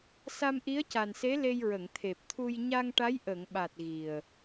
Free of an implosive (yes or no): no